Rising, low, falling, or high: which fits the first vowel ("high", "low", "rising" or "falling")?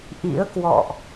rising